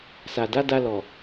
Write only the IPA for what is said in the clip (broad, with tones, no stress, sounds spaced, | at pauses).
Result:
s a˨ d a˨˦ d a˧ l ɔ˨